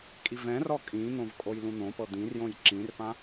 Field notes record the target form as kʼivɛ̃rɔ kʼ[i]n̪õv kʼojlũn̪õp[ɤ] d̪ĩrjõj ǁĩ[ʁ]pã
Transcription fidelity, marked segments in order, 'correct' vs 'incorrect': incorrect: ĩ, correct, incorrect: r

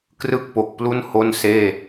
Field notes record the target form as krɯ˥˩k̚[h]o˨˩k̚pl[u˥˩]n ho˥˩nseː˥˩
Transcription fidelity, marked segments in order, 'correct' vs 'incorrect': incorrect: p, correct

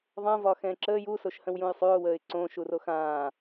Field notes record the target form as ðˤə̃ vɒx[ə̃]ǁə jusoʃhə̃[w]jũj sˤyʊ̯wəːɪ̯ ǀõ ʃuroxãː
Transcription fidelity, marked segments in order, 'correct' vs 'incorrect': incorrect: ɛ̃, correct

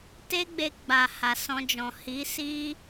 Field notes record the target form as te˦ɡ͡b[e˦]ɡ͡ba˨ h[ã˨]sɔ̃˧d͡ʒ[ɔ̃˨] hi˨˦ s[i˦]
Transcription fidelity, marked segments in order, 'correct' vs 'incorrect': incorrect: e˧, incorrect: a˨, correct, correct

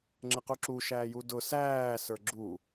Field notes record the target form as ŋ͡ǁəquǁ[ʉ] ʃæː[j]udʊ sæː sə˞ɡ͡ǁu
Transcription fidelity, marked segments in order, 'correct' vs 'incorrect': incorrect: u, correct

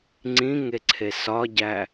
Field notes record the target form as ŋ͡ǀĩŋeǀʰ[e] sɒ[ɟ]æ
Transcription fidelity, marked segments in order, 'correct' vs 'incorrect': correct, correct

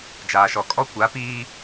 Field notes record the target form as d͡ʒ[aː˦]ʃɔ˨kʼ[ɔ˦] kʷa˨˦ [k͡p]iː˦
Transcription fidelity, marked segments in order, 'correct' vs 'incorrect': incorrect: aː˨, correct, incorrect: p

